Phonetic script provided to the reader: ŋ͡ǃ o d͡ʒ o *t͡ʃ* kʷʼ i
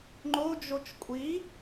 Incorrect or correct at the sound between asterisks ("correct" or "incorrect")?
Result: correct